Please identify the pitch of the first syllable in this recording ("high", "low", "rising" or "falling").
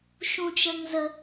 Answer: high